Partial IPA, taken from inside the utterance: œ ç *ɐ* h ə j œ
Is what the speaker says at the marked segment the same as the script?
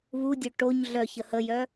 no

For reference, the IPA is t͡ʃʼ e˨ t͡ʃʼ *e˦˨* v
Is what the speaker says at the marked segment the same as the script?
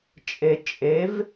no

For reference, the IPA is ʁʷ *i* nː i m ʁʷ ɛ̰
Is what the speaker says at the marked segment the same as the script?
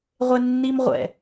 no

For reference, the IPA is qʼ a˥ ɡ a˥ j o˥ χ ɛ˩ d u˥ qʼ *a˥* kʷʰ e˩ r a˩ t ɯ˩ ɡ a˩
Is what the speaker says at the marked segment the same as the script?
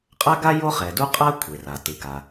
yes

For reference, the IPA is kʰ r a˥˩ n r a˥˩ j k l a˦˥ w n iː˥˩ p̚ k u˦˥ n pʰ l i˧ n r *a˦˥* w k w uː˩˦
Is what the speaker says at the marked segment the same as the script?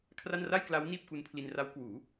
yes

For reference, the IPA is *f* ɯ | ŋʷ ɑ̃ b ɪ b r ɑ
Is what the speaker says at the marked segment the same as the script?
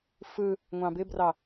yes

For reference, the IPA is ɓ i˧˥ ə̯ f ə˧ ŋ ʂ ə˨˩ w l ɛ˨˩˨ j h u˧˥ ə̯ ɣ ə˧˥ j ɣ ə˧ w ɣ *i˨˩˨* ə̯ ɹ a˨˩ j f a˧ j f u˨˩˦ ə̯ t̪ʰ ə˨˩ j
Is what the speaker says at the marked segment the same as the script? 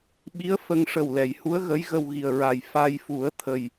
no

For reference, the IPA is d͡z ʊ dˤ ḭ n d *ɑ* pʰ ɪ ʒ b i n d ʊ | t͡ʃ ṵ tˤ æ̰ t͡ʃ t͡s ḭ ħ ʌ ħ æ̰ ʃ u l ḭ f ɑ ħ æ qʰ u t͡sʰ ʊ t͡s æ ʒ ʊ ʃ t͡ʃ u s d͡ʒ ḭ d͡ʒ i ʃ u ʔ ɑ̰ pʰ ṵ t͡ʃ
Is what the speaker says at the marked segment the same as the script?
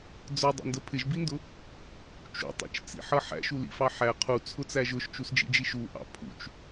no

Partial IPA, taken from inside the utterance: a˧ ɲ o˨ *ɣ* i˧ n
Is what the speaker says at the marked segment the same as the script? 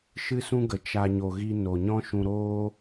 yes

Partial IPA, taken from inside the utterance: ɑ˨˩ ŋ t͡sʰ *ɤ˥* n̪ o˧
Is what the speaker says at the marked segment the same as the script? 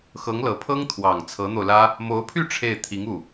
no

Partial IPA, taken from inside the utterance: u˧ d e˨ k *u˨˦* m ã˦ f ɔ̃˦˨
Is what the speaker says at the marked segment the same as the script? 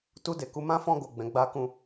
yes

